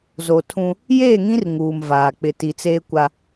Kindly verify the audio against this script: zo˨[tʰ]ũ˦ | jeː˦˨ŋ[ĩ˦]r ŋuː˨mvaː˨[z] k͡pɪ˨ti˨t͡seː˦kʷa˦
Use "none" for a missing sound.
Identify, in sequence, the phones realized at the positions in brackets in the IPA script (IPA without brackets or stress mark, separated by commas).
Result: tʰ, ĩ˦, none